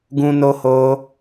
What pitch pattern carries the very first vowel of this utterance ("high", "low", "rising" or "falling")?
high